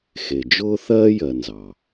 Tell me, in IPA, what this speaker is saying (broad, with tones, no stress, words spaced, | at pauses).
xe˨d͡ʒʊː˥ θɜː˥jɜ˨nzɑ˩